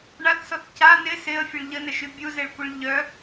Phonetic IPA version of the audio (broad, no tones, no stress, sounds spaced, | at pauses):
ɳ a θ s ɔ θ c a n ɪ s ɪ ə̯ fʲ ə ɭ ʎ ə n ə ʃ y bʲ u z e ɭ kʷ ə ɭ ʎ œ